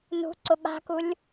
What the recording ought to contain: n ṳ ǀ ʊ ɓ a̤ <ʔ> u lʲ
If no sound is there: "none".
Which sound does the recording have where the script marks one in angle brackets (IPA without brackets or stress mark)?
k